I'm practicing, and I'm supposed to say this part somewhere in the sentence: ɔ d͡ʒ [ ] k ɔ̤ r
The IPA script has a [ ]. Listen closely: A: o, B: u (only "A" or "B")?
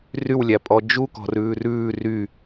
B